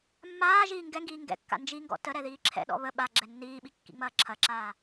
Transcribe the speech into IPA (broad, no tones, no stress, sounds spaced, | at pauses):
mː aː ʒ iː ŋ ɡ ɛ ŋ ɡ iː ŋ ɡ ɛ̰ kː a̰ n d͡ʒ i ŋ ɡ ɔ̰ t ə ɾ ɛ ð iː ǁʰ ɛ̰ ɗ ɔ̰ β ə ɓ a ɡ͡ǁ ɛ nː iː ɓ i kː ḭ ŋ͡m ɐː ǁʰ ɐ ǁ aː